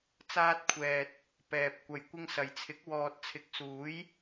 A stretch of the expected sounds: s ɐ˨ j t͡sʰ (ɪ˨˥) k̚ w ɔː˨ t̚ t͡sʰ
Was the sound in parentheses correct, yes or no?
yes